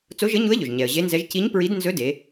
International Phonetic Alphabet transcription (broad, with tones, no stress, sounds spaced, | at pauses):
t͡s o˧˥ ʒ ɘ˧˥ ɲ u˧˥ ə̯ ʎ ɵ˩ ʒ ɲ ɛ˩ ə̯ ʑ e˧˥ n z ɛ˧˥ ʒ c i˧˥ ɲ p ɹ i˧˥ d n z ɵ˧˥ d e˩˧